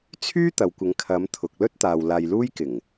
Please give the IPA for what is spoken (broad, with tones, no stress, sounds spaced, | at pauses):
t͡sʰ yː˥ t̪ ɐ˨ w kʷ ɪ˨˧ ŋ kʰ ɐ˨˧ m t̪ʰ ʊ˨ k̚ l ɵ˥ t̚ t̪ aː˨ w l aː˧ j l uː˥ j k ɪ˨˩ ŋ